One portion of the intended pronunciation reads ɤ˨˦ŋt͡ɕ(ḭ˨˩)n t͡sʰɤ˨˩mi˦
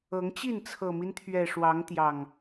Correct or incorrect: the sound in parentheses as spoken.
incorrect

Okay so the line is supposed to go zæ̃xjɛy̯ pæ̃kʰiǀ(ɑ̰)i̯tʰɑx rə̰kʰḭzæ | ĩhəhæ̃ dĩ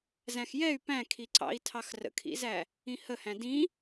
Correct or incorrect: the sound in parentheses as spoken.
correct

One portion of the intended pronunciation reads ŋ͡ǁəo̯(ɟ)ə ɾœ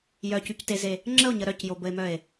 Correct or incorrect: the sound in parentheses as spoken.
incorrect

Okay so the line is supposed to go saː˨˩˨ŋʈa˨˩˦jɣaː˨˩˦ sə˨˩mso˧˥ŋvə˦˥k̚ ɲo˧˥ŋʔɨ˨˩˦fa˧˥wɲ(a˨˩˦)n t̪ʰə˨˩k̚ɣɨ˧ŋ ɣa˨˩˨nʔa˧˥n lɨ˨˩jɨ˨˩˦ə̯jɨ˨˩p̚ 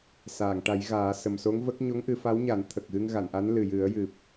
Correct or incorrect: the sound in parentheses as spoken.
correct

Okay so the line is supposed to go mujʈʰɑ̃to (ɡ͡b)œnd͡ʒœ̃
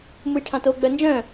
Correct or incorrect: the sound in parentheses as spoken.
correct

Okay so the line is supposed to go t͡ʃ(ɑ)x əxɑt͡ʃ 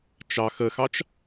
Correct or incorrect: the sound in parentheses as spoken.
correct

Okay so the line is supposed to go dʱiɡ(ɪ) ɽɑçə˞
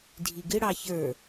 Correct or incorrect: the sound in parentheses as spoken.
correct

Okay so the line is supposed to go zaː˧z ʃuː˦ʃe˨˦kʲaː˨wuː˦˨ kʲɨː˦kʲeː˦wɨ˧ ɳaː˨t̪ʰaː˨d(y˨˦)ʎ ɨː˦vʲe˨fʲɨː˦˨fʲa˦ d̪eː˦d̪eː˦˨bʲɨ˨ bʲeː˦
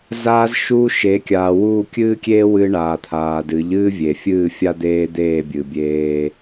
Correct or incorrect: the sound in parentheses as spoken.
incorrect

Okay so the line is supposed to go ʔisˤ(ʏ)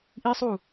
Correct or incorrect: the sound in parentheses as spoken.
incorrect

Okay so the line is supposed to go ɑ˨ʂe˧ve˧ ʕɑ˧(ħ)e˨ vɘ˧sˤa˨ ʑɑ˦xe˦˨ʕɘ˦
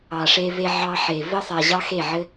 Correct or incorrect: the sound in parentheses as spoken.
correct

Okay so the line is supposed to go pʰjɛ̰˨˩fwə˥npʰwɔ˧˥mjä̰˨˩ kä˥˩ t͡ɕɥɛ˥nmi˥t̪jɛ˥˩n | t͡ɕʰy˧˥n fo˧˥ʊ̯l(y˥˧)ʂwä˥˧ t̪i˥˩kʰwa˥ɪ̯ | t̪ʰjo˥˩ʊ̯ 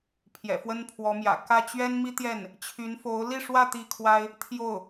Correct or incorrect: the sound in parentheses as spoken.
incorrect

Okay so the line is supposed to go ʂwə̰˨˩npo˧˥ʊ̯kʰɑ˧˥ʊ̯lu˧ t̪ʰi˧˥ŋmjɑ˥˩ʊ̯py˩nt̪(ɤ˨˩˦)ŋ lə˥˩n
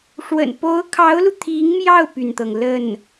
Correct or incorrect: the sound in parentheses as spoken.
incorrect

